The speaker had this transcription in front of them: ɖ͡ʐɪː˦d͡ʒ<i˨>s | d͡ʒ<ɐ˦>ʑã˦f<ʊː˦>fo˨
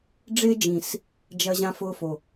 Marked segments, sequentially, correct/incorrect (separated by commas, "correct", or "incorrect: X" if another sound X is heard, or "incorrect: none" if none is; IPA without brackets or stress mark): incorrect: ĩ˨, correct, correct